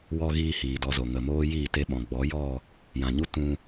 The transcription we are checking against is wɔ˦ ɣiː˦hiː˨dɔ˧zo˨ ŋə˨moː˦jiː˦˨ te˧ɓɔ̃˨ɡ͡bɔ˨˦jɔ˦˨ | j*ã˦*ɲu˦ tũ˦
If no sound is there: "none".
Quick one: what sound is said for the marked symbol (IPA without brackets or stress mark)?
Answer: ã˨